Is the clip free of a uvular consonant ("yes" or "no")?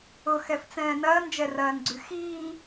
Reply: yes